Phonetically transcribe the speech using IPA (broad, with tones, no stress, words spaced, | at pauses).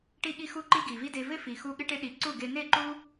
ʈi˦ɠi˦xu˦ǃi˦ ɡi˨vi˦de˧ vɪ˦fi˨xu˧ ɠɪ˦ʈe˦ ɗi˧ ǀu˦˨ɡe˧ ne˦˨ǃu˦